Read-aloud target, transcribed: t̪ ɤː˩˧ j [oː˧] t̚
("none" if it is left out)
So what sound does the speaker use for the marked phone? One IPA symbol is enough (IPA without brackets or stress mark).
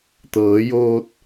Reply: oː˧